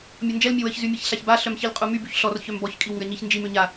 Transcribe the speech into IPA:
mʲɔnd͡ʒɛl mʲewəç zymʲɛçɬaçba ɬœmçilqʼumy byçɬɔr çœmbɔç kʼiwŋɡaɲiçnd͡ʒim øɲa

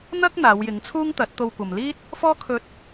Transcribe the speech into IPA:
n̪ɐ˥k̚ n̪aː˨˧wjɪ˨˧ŋt͡sʰuː˥ŋt̪ɐ˨˥t̚ t̪o˧wkʷɐ˨mliː˥t̚ | fɔː˥kʰɵ˧t̚

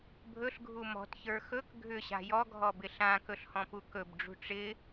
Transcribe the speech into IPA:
bʱɵɬɡʱu mɔ̤tçə˞ xɵk ɡʱʏɕa̤ jɔɡʱɔbɪ ɬãkɵɬhɔ̃pu kɵbɖ͡ʐṳ ʈ͡ʂɪ

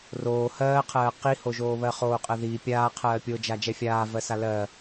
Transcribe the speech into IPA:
roː hɜːqʰɜː qihoʒoː βɜχoːqʼɜðiː pʲaːqʰɜː pʲod͡ʒa d͡ʒɛfʲaːvɜsa lɜ

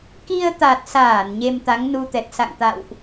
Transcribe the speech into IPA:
ki˧ə̯t̪a˨˩t̚saː˧˩n ɲe˧mt̪a˨˦ŋnu˧t̪ɛ˨˩t̚ sa̰˧˨ŋt̪a̰˧˨wʔ

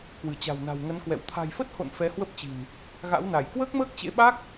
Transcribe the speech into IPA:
kwɨ˧˩t͡ɕa̤˨˩wna̤˨˩w ŋə˨˦nkwɛ̰˧˨w t̪ʰa̤˨˩jfə˦˥t̚ho̰˧˨n fɛ˨˦hwə˦˥p̚t͡ɕi̤˨˩n | ɣa̰˧˥wna˧˩j kwəː˦˥k̚məː˦˥k̚t͡ɕḛ˧˥ɓa˦˥k̚

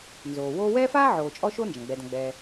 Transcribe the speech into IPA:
nzoː˩ woː˥ wɛː˥faː˥ ʕoː˨t͡ʃʼɔ˥ʃo˥ nd͡ʒɐ̃˩ɡ͡bɛ˨dɐ̃˨ɡ͡bɛː˨

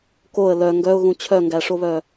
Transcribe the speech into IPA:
koə̯ lœ ŋɡœʊ̯ɣũ t͡ɕʰœŋɡæʂoβœ

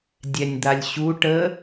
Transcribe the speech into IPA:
dʲɛnʲd̪alʲɕu ʈə

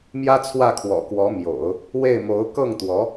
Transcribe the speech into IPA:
mjä˥t͡sʰwä˥˩kʰwɔ̰˨˩ kwɔ˧˥mjo̰˨˩˦ʊ̯ | we˥˩ɪ̯mo˧˥ʊ̯ kɤ˥˩ŋt̪wɔ˧˥

